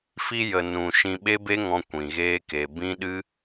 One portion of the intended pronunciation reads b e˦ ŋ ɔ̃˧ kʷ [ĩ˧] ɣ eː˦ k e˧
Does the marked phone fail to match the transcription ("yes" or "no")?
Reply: no